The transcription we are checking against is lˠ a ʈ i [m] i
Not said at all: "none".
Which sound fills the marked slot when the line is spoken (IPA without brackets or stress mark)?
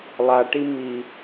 m